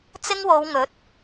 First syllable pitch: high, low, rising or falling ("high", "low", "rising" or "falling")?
high